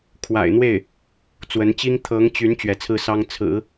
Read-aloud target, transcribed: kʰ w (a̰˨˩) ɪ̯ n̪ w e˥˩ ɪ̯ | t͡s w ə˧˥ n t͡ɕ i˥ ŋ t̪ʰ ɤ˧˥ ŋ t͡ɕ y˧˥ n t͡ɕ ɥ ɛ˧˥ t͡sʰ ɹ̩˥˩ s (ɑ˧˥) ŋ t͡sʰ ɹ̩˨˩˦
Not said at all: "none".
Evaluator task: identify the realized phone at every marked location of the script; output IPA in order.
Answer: a̰˨˩, ɑ˥

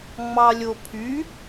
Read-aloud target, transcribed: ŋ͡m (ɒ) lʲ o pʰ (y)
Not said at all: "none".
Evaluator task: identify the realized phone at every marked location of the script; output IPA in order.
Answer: ɑ, y

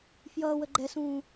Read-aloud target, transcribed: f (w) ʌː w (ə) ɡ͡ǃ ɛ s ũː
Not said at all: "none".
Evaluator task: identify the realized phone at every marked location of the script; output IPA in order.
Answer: j, ə

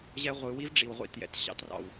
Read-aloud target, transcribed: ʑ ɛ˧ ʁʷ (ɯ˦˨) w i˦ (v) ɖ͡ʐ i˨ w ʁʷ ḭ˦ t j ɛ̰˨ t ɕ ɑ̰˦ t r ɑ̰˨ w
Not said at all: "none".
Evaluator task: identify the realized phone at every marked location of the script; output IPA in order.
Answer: ɯ˨, v

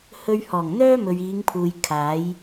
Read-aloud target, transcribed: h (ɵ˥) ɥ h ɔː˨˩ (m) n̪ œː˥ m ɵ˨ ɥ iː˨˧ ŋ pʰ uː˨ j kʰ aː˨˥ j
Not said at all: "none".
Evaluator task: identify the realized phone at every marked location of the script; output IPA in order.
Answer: ɵ˧, ŋ

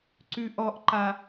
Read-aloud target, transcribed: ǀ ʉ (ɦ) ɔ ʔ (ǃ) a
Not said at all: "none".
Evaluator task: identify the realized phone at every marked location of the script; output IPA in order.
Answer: ʔ, ǃ

